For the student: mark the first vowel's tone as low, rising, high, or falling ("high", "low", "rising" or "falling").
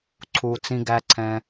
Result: low